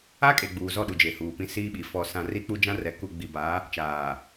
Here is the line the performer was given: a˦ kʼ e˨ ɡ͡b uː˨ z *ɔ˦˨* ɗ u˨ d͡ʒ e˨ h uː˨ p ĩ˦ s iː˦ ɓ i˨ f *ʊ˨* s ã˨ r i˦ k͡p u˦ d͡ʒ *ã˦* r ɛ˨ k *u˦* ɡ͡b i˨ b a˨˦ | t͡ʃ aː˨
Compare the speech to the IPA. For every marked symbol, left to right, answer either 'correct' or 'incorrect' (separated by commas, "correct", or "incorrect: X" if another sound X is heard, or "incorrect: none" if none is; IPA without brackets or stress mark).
correct, incorrect: ɔ˨, correct, incorrect: u˨